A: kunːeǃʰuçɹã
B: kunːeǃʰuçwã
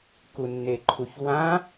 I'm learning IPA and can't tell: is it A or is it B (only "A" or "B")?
B